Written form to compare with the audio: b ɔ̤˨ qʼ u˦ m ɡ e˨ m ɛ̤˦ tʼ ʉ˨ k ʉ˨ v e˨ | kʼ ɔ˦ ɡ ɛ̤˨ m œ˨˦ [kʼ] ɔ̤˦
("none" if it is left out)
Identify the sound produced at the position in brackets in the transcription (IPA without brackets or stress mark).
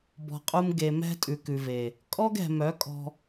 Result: kʼ